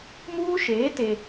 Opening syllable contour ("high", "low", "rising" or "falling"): high